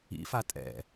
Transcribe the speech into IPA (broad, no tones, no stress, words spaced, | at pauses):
ḭ fatʼɛ̰